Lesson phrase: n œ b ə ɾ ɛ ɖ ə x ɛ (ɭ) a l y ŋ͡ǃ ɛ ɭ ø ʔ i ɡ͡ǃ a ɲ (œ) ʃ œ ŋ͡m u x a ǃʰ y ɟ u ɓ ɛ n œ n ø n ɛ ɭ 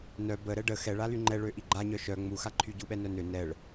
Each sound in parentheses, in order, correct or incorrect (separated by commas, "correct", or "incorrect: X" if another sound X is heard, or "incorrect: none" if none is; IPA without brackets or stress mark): correct, correct